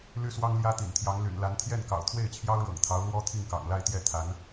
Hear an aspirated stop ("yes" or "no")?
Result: yes